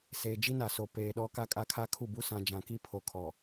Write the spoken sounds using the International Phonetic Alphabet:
seː˨d͡ʒi˦ na˨so˨ peː˨ɗɔ˦ka˦ kʼa˦kʰa˦kʰu˦˨bu˦ sã˨ d͡ʒã˨ki˦ pʰo˨kʰɔ˨

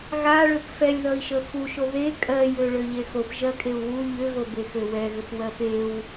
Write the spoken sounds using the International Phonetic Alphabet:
ɣa ɭøpfɛlʲðʌi̯ʃə xuʃo ðe kʼɜjø ɭøʎexop ʒɜkʼeu̯wu ʎʏɣo bexøwɛɣʏp wɜpew

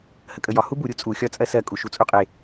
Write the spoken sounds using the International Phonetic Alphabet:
həkʼəjɒ hubu ɾʲut͡sʼu xʲɒt͡sʼɜsɜ kʼuʃut͡sʼuqʼe

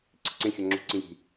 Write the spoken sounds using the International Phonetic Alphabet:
ǀi̤ǀẽ xʲɒŋ͡ǁṳǀĩji̤

